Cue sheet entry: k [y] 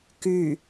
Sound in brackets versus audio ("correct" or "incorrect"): correct